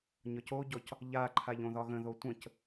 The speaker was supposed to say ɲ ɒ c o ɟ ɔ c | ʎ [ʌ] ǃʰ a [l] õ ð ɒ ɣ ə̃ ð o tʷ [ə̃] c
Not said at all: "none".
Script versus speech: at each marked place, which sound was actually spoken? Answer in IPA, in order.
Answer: a, ʎ, ə̃

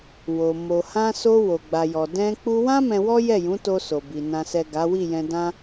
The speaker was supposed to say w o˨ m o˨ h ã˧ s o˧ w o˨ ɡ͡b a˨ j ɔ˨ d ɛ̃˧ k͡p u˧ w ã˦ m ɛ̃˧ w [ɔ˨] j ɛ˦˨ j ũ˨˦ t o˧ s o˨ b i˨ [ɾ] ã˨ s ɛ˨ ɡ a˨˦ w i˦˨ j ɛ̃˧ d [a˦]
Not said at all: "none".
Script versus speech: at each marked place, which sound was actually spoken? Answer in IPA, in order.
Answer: ɔ˦, n, ã˦

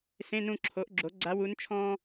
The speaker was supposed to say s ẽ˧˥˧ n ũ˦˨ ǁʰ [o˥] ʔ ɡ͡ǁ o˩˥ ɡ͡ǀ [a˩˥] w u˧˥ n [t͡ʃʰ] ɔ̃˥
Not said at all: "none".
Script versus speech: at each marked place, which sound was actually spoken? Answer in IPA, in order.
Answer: o˩˥, a˧˥, t͡ʃʰ

